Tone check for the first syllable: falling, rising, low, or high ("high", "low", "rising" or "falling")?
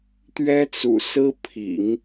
high